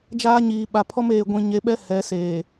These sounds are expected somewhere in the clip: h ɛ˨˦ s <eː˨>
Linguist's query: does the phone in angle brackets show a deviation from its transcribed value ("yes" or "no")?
no